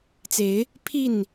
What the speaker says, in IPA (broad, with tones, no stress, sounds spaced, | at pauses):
t͡s e˨˦ ɪ̯ | pʰ i˥˨ n